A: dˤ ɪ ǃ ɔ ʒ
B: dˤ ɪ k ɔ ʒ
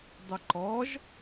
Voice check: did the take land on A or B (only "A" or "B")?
A